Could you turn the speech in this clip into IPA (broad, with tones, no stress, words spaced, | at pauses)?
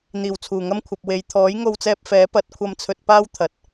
n̪iː˨˩wt͡sʰuː˨˩ŋɐ˥mkʷʰɐ˨p̚ we˨˧j t̪ʰɔː˨˥j ŋo˧wt͡sɛː˧p̚ fɛː˨˥ pɐ˨˥t̚kʷʰɐ˧mt͡sʰɵ˧t̚paː˥w t̪ʰɐ˨t̚